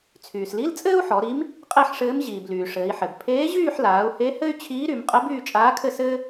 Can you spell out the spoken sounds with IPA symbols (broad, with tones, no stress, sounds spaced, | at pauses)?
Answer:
t͡sʰ yː˩ s l i˧˥˧ l t͡sʼ ɘː˥ u̯ ħ ɔ˩˧ ɾ i˧˥ m | qʼ e˥˧ ħ ʂ ɘː˧˥ m ʑ iː˩ b l yː˩ ʂ ɘː˩˧ i̯ ħ ɘ˩ b pʰ eː˧˥ ʑ yː˥˧ ħ l aː˩˧ u̯ h e˧˥ h ɘ˥ y̯ t͡ɕʰ iː˧˥ ɾ y˩˧ m qʼ ɘ˧˥ b yː˥˧ t͡ʃʼ aː˧˥ kʰ ɘ˥˧ s ɘː˥